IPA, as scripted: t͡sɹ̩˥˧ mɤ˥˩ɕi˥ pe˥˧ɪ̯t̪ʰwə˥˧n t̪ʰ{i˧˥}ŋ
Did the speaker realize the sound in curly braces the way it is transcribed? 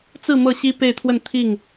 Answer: no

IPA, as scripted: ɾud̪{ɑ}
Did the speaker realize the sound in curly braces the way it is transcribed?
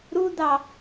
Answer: yes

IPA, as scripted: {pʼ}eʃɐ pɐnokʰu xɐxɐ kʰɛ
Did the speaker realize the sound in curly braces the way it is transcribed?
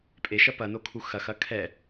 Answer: yes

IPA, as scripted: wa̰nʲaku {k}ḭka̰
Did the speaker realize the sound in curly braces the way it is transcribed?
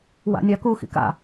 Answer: no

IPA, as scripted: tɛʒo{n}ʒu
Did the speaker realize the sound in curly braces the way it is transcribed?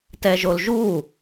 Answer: no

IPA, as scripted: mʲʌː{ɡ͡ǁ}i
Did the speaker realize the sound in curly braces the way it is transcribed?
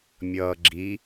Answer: yes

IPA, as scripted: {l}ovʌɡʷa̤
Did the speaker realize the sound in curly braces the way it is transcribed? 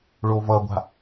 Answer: no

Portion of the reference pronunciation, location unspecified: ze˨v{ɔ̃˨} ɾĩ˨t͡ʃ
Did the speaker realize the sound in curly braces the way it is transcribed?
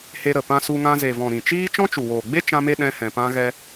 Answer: yes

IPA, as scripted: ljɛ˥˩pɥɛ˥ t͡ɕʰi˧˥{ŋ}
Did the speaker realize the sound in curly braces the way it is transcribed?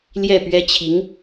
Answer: yes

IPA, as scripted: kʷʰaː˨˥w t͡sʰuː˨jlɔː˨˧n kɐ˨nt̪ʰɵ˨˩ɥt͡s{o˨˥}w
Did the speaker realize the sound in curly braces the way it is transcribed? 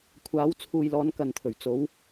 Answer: yes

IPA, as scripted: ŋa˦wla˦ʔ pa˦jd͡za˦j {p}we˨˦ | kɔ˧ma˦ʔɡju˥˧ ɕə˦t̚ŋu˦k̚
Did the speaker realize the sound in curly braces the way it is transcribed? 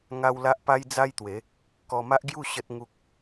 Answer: no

